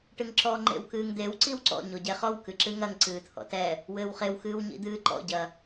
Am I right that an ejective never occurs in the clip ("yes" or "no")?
yes